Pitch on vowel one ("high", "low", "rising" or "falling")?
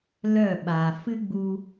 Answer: falling